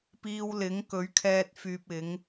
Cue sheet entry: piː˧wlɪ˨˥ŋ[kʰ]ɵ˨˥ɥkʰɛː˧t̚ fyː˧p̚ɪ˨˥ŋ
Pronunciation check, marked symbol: incorrect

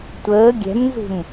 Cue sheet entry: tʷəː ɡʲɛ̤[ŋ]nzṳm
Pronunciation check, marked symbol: incorrect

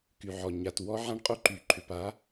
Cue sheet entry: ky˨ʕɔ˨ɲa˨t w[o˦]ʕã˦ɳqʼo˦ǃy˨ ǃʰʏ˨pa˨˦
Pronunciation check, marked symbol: incorrect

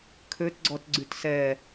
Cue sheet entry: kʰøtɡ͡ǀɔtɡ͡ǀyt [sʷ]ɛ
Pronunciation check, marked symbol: incorrect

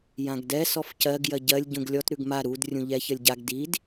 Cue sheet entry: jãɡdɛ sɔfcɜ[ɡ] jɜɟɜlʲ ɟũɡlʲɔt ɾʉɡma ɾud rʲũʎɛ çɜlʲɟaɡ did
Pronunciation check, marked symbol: correct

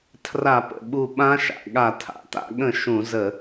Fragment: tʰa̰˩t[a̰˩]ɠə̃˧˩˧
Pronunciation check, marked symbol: incorrect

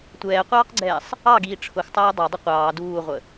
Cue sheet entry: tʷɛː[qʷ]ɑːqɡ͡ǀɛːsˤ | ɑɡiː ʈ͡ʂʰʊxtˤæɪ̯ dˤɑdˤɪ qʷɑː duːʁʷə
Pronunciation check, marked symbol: correct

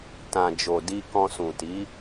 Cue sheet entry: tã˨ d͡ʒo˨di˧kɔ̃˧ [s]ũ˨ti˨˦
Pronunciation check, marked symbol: correct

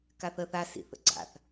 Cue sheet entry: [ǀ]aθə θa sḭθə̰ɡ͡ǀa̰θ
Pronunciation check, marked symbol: incorrect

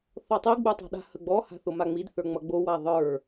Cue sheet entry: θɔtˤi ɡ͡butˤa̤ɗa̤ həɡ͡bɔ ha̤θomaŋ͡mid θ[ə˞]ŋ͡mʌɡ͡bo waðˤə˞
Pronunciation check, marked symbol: correct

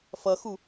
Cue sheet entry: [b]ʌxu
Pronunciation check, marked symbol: incorrect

